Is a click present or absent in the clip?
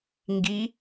absent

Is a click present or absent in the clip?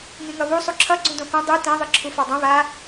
present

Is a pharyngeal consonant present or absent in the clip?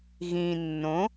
absent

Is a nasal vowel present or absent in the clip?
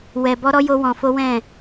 present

